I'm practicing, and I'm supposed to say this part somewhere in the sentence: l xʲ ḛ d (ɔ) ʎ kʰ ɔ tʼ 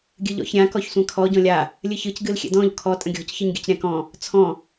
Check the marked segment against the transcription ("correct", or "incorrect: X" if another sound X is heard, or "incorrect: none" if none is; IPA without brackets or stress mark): incorrect: ɔ̃